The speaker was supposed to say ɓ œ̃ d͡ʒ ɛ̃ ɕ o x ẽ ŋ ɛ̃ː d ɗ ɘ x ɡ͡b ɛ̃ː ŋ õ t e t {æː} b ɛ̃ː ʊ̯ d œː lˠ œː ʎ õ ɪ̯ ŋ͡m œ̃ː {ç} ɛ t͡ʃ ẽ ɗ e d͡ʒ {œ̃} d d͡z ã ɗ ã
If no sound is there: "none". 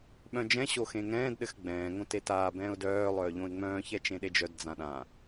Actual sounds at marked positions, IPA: aː, ç, œ

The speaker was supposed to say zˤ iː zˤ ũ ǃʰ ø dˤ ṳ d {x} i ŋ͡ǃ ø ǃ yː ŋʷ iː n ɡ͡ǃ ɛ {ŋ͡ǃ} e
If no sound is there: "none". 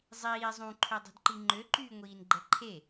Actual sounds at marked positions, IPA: ǃ, ǃʰ

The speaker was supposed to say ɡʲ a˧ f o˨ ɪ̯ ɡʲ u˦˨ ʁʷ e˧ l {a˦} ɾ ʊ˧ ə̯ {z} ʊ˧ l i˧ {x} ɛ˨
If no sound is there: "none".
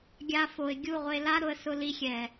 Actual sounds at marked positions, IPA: a˦, s, xʲ

